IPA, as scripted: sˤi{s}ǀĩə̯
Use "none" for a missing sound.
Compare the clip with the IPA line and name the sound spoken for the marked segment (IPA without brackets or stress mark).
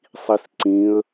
s